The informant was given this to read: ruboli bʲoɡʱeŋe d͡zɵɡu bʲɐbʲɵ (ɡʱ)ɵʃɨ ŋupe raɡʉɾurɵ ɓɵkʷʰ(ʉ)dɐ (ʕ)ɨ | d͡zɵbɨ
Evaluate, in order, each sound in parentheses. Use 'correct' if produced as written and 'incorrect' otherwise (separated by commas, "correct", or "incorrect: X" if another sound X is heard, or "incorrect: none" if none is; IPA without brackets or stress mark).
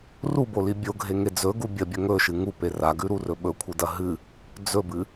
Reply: incorrect: ŋ, incorrect: ɨ, incorrect: ɦ